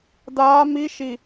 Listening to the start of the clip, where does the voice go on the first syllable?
rising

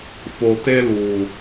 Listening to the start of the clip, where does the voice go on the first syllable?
low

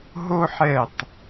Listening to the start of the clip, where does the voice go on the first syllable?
high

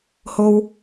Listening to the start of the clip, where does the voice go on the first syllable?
low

